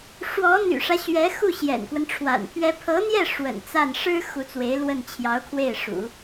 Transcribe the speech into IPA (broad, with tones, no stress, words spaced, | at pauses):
ʂwɔ˧˥n̪y̰˨˩ʂä˦ ɕɥɛ˧˥xu˥˩ ɕjɛ̰˨˩nkwə˦nʈ͡ʂʰwa̰˨˩npʰɥɛ˥ pʰɤ˧˥n̪jɛ˥˩ ʂwə̰˨˩nt͡sa˥˩n ʂɻ̩˥ xu˧˥t͡swe˧˥ɪ̯lwə˥˩n t͡ɕʰjɑ˧˥ʊ̯kʰwe˥˩ɪ̯ʂṵ˨˩˦